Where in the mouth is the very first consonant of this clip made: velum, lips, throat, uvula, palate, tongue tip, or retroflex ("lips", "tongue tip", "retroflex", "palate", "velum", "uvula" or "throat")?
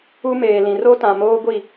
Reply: lips